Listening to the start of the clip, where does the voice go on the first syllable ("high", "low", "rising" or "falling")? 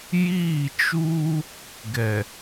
falling